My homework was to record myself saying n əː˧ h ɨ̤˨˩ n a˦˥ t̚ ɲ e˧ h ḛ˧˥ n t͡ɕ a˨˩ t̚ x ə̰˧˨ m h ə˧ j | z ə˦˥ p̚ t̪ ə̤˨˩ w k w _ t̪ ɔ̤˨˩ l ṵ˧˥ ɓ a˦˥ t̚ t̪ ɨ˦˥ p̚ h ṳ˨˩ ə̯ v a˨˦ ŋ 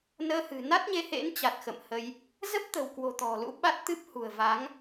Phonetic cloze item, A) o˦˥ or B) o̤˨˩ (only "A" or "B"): B